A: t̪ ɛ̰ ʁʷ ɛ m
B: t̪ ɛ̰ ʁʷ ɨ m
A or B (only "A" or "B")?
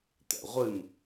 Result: B